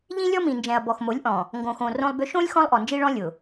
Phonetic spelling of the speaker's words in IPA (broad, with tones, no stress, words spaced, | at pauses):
ʎĩ˦lʲɔ˦mĩ˨nd͡ʒɛ̃˨ɐ̯ bɔ˨xmo˨˦lʲʔɔ̃˨ | ŋɡõ˨xõ˨ rõ˦lˠbʏ˦ ʃõ˦lʲ xɔ̃˦lˠʔɔ˨nd͡ʒi˦ɭɔ̃˦ lʲʊ˨